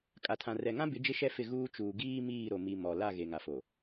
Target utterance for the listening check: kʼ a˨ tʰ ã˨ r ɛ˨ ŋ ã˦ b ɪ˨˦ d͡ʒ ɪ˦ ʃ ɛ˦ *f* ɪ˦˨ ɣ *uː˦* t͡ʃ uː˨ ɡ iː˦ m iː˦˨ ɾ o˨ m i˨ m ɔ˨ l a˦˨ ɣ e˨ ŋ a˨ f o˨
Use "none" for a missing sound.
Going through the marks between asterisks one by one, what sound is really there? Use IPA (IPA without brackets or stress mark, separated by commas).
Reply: f, uː˦